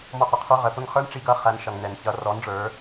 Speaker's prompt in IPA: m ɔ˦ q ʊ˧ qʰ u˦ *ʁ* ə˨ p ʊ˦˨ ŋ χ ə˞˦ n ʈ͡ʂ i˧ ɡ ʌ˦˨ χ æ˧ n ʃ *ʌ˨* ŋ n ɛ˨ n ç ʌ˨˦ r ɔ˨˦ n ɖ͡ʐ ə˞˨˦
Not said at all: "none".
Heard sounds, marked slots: ʁ, ʌ˨

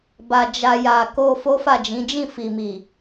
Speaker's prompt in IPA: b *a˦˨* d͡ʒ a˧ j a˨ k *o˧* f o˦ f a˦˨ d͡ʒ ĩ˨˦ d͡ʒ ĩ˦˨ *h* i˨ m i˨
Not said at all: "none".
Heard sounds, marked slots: a˧, o˧, f

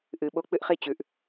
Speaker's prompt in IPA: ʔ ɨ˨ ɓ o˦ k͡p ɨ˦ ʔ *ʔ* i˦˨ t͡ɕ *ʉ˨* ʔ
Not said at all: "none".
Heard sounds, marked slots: χ, ʉ˨

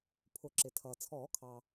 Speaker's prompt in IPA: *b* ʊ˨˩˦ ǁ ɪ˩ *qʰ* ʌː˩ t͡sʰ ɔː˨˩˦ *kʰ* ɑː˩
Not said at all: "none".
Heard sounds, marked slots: pʰ, tʰ, kʰ

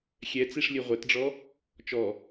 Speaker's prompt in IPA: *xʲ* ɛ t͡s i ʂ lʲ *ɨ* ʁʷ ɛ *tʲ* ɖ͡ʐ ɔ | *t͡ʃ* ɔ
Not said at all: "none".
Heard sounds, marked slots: xʲ, ɨ, t, t͡ʃ

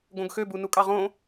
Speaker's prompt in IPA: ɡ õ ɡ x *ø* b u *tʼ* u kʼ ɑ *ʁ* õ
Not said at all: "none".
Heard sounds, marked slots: ø, n, ʁ

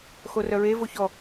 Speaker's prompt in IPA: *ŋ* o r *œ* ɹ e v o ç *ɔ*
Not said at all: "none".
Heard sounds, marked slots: x, œ, ɔ

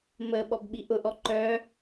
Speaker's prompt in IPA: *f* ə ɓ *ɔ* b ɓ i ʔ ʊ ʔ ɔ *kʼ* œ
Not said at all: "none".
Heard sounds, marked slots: m, ɔ, ǃ

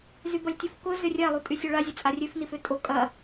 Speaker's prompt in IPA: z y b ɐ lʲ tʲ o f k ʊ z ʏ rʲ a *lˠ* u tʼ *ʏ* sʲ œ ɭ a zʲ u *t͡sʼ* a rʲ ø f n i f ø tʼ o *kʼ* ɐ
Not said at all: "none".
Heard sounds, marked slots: lˠ, y, t͡sʼ, kʼ

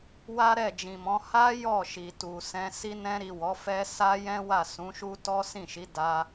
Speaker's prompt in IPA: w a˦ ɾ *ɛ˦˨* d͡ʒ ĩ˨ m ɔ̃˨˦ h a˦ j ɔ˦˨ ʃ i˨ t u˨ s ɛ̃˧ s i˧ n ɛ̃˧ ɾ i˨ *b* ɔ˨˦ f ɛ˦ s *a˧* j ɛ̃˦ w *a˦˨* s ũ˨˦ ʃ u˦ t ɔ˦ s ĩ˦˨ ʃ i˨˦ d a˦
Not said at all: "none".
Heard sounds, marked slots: ɛ˦˨, w, a˦, a˦˨

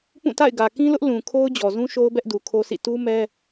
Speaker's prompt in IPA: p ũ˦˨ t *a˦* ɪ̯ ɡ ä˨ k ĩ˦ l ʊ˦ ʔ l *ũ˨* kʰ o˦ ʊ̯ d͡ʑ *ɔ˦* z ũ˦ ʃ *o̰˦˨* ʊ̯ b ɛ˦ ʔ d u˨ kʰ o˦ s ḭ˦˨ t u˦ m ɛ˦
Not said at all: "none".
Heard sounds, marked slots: a̰˦˨, ũ˨, ɔ˨, o˦

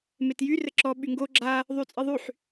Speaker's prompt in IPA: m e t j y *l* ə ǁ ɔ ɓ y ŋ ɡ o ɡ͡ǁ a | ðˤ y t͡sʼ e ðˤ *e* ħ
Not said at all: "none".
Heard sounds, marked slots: r, y

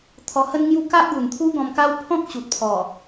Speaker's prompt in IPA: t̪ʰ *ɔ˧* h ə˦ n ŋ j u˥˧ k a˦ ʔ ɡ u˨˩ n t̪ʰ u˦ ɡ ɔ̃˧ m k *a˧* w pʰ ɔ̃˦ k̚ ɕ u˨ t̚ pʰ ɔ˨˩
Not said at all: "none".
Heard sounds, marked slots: ɔ˧, a˦

